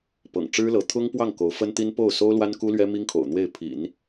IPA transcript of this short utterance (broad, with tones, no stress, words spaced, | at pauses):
pɤ̰˨˩ŋ ʈ͡ʂɻ̩˥lɤ˧˥ t̪ʰʊ˥ŋpwɑ˥˩ŋ ko˧˥ʊ̯fə˥nt̪i˥n po˥˩ʊ̯so˥ʊ̯lwa˥n ku˥lɥɛ˥mi˥ŋkʰo̰˨˩ʊ̯ n̪we˥˩ɪ̯pʰḭ˨˩˦n